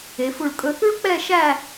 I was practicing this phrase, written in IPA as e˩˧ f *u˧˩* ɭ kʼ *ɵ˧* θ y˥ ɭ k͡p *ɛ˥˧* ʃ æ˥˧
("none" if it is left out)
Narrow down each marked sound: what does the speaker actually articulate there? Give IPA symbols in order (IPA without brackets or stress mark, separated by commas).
u˧˩, ɵ˧, ɛ˥˧